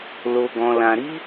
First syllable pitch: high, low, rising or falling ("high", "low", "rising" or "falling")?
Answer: low